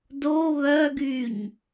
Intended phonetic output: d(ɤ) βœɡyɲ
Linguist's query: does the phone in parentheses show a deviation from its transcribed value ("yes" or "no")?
yes